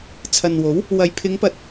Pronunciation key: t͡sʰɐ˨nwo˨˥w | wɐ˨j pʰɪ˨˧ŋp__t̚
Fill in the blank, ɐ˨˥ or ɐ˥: ɐ˨˥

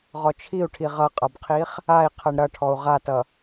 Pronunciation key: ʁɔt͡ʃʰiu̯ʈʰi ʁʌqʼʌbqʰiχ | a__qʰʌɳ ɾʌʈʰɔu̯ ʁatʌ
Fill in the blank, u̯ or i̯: i̯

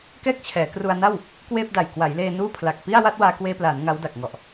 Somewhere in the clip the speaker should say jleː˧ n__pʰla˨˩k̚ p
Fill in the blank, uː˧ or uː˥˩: uː˥˩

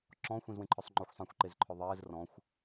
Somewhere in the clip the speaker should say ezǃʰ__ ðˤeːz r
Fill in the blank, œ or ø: œ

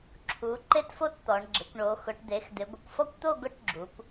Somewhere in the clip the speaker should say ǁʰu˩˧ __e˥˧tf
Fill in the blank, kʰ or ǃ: ǃ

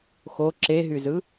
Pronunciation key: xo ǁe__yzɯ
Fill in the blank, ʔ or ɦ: ɦ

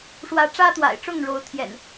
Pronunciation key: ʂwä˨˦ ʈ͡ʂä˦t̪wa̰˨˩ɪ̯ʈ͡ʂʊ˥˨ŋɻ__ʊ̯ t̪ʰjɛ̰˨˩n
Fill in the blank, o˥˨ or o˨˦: o˨˦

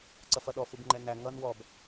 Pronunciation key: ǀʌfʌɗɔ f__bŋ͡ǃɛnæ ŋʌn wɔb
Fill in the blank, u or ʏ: u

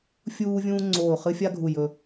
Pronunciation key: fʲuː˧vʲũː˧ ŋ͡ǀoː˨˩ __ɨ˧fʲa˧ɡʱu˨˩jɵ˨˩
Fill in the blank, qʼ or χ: χ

